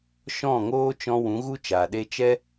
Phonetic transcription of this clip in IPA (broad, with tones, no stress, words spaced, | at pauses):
ʃɔ̃˦˨ŋoː˦t͡ʃɔ̃˧ wũ˨˦ɣu˦t͡ʃa˨ ɗe˧t͡ʃɛ˦